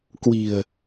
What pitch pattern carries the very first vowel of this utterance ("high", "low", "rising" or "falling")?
low